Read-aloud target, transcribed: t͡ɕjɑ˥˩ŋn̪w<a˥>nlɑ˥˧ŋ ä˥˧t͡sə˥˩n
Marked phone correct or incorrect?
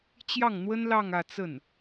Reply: incorrect